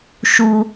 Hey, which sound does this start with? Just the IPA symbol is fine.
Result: ʃ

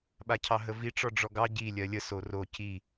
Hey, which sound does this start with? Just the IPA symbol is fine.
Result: ɓ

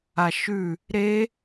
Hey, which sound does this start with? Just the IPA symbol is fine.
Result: a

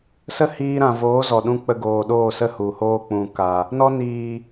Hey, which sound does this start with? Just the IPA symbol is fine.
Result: s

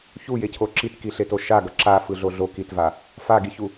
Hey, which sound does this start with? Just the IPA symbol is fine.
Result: ç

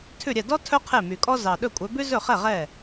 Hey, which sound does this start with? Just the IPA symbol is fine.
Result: tʰ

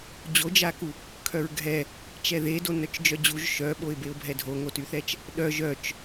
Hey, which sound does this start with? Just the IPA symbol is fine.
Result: d͡ʑ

